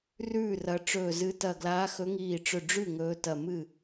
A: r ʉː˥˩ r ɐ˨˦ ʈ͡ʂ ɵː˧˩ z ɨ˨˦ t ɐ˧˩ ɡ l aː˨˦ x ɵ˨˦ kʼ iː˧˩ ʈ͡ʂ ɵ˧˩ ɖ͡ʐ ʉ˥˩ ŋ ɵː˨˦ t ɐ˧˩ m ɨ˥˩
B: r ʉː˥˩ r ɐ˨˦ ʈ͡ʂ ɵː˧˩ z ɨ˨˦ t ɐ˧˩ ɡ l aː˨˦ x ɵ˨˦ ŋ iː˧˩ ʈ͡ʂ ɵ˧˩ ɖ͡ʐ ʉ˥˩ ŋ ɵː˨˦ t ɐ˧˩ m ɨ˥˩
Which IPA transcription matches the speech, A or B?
B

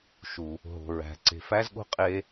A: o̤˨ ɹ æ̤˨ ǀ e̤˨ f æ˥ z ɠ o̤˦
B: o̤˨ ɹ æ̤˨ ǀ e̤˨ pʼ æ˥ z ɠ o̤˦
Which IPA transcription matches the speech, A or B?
A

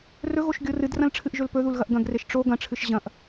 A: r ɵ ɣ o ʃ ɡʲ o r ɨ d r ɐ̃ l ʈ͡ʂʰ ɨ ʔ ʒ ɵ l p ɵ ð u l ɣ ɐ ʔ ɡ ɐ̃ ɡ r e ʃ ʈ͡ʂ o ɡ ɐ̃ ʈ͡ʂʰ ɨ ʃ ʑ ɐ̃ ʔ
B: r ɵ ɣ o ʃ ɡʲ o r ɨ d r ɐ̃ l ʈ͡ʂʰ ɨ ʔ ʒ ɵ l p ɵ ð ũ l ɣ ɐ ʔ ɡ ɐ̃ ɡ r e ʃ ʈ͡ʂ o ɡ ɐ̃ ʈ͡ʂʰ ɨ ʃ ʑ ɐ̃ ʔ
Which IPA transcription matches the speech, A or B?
A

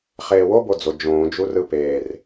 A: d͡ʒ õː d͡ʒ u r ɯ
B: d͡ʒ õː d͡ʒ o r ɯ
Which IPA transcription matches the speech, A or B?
A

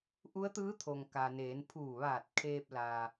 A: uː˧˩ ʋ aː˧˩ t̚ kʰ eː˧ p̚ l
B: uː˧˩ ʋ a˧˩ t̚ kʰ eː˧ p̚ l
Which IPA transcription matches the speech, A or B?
A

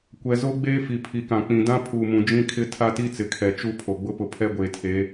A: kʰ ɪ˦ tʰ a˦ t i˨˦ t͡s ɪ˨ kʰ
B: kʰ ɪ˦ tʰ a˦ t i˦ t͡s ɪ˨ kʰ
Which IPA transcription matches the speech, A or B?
B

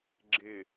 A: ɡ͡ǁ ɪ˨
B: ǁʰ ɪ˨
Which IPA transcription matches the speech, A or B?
A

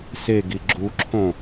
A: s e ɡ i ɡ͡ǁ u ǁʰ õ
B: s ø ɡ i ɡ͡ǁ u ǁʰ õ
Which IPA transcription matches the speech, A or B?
A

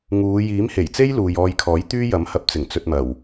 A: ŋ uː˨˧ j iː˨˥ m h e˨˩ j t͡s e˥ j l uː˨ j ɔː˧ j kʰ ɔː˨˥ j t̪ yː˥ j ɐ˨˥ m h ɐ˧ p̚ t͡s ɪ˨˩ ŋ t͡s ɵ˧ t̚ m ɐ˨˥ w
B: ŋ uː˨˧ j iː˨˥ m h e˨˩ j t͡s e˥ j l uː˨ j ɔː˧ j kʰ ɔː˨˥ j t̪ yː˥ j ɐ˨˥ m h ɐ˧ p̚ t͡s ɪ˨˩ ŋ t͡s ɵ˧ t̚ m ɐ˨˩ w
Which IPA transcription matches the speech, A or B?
B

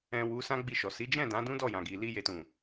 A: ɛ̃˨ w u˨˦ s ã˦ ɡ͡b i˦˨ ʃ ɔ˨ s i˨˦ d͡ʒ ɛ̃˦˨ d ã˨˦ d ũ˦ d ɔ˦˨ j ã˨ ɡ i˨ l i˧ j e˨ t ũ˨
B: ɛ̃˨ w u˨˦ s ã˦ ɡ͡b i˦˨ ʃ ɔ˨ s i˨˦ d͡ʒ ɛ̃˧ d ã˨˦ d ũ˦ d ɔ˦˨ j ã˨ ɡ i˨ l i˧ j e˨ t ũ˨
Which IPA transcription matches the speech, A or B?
A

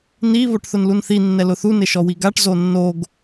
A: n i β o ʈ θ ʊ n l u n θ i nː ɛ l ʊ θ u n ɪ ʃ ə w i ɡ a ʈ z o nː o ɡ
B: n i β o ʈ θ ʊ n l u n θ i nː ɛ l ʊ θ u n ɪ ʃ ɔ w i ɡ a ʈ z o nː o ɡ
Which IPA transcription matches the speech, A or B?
B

